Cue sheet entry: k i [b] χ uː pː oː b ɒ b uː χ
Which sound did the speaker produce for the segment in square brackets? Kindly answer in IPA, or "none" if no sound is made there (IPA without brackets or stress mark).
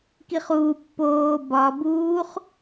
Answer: none